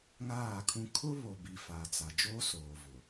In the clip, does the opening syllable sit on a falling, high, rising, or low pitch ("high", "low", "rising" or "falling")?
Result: falling